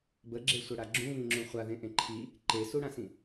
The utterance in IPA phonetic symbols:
b ə ɡ͡ǁ e sʷ ɐ ɽ a ɡ͡ǁ ũ β ĩ ŋ͡ǁ ũ χʷ a ð ẽ ʔ ẽ ǃʰ i | ǃ e s u ɽ ã s ĩ

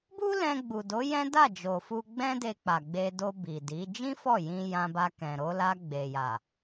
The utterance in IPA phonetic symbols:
b u˦ l ɛ̃˧ ɡ͡b u˨ d o˨˦ j ɛ̃˦ d a˦˨ d͡ʒ o˨ f u˧ ɡ͡b ɛ̃˦ d e˧ k͡p a˨ ɡ͡b e˧ d o˧ b i˨ d i˨˦ d͡ʒ ĩ˦ f ɔ˦˨ j ĩ˧ j ã˧ b a˧ k ɛ̃˨ ɾ o˧ l a˧ ɡ͡b e˨ j a˨

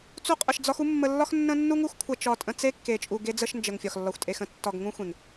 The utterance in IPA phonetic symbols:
t͡s u˦ qʼ ə˧ ʃ d͡z ɒ˦ x u˦ mː ə˧ lː ɒ˦ x nː ə̃˦ nː u˦ ŋ u˦ x kʷʰ ə˧ t͡ʃ ɒ˧ tʼ ə̃˧ t͡s e˦ kː e˨ t͡ʃʼ u˨ ɡ e˧ d͡z ə˧ ʃ n d͡ʒ ə˨ ŋ fʲ ɒ˨ x lː ɒ˨ xʷ tʼ e˨ x ə̃˨ tː ɒ˨ ɡ ŋ ũ˦ xʷ ẽ˨ ŋ

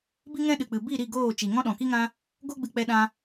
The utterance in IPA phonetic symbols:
b i˦ ŋ ɛ̃˦ ɗ ɨ˨ k͡p ɨ˨ b i˦˨ ɾ i˦˨ ɡ oː˦˨ t͡ʃ i˨ ŋ ɔ̃˦ ɗ ɔ̃˨ k i˦ ŋ ã˦ | ɡ o˦ ɡ͡b ɨ˧ k͡p ɛ˧ ɗ ã˧

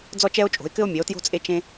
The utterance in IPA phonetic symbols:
d͡z ɔ˦ t͡ʃ ɛ˦ o̯ t͡ʃʼ o̤˨˦ e̯ k ɘ˦ o̯ mʲ e˨˦ o̯ t j o̤˦ t͡sʼ e˦ t͡ʃ ẽ˦

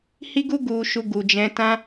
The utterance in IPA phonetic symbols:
h i˦ ɡ u˦ ɡ u˧ ʃ u˧ ɡ u˨ d͡ʒ ɛ̃˧ t ã˦

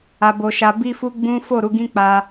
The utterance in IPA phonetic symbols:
a˧ b o˧ ʃ a˧ b i˦ f u˦ ɡ͡b ũ˦ f o˦˨ ɾ u˨˦ ɡ ĩ˦ k͡p a˦

